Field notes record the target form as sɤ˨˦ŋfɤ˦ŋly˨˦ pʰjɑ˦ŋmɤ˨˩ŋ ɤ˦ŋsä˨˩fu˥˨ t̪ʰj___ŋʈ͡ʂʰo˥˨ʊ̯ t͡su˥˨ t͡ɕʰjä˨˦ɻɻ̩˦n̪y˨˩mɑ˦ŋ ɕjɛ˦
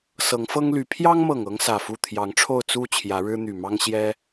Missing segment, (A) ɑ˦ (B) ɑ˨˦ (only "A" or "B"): B